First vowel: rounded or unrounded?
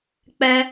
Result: unrounded